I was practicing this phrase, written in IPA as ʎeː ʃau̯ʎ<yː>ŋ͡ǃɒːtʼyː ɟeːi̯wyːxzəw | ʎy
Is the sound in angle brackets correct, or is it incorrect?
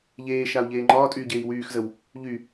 incorrect: eː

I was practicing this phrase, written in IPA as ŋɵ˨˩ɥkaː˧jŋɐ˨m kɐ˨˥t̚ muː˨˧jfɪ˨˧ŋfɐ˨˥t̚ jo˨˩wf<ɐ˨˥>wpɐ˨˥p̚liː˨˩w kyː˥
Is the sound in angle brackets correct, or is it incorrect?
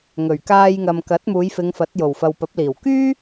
incorrect: ɐ˨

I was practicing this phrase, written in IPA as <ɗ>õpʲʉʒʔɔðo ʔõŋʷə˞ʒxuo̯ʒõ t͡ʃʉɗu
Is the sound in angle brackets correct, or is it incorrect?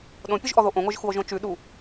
correct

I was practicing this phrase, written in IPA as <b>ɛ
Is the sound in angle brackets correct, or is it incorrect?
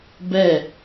correct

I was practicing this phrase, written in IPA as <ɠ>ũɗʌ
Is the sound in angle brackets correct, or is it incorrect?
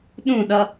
incorrect: ɗ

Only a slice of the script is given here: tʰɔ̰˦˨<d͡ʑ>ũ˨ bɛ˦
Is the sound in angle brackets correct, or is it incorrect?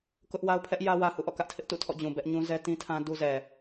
correct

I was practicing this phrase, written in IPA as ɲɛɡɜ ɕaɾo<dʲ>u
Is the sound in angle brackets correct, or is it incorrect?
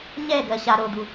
incorrect: d̪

